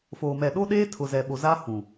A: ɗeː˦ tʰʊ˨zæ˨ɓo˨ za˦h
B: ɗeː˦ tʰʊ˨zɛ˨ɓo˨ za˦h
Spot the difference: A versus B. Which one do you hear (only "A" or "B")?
B